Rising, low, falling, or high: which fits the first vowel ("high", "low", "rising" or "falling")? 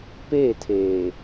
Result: falling